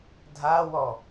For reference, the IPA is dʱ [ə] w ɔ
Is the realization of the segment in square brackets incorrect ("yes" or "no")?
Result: yes